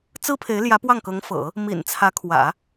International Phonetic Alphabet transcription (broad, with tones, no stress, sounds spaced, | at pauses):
t͡s ɹ̩˥ pʰ e˧˥ ɪ̯ l j ä˧˥ p w ɑ˥˩ ŋ k ɤ˧˥ ŋ f ɤ̰˨˩˦ | m ḭ˨˩ n t͡sʰ ä˧˥ kʰ w ä̰˨˩˦